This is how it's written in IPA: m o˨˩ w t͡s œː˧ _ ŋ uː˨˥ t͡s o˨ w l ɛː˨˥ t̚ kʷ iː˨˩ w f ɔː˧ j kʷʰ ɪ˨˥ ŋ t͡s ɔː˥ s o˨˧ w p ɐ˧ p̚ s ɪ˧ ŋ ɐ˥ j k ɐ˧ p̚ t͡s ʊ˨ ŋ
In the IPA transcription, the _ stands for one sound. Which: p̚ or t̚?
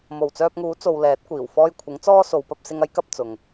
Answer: p̚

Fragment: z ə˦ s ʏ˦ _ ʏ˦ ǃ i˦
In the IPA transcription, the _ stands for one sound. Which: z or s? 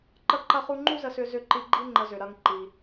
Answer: z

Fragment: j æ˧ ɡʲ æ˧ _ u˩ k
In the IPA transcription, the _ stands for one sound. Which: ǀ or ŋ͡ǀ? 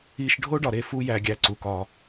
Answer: ǀ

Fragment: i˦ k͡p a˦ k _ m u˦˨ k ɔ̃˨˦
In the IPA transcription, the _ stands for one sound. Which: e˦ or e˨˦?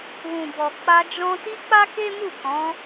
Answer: e˦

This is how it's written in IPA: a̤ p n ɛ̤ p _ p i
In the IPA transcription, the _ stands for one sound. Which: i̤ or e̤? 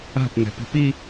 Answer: i̤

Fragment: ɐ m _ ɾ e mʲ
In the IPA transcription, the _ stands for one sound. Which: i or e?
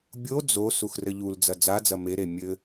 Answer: e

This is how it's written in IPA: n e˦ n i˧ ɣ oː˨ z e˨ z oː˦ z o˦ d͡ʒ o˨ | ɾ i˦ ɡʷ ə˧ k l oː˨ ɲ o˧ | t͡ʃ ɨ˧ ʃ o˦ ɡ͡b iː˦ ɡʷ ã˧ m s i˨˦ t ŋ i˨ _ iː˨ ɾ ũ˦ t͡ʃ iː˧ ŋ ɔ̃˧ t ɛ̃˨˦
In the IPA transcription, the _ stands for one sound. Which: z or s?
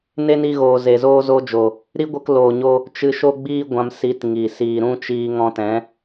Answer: s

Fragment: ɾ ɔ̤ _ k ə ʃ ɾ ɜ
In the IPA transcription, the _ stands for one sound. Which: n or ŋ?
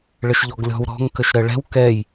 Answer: ŋ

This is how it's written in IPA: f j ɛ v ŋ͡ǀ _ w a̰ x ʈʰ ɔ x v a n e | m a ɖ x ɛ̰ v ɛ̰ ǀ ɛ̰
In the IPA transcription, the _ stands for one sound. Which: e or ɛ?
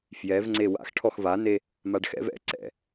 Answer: e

